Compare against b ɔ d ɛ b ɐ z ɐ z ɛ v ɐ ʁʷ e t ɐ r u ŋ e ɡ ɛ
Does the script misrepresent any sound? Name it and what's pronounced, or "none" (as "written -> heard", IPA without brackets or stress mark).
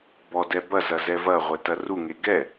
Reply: none